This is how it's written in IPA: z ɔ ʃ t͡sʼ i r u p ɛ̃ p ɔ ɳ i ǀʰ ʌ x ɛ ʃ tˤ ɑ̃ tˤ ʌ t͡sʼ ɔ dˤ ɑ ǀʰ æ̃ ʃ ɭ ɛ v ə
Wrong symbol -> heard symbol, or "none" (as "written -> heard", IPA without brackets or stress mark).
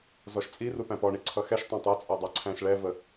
ɛ̃ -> æ̃